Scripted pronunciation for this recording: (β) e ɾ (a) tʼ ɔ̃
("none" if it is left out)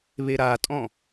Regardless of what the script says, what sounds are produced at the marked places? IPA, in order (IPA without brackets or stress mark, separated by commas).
β, a